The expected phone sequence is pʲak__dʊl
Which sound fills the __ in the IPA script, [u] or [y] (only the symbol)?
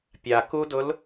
u